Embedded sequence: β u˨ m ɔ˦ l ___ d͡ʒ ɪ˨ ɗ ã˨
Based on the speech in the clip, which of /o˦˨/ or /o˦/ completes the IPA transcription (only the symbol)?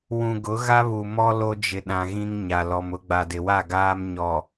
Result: o˦